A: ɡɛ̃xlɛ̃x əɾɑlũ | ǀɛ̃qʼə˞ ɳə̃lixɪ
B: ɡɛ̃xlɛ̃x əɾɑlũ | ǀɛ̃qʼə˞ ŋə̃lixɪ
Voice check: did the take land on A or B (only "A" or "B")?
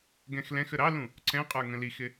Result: B